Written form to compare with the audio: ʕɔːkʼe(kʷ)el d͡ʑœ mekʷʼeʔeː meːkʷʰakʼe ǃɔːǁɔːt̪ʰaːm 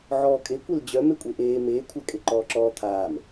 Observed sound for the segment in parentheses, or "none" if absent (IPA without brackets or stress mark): kʷ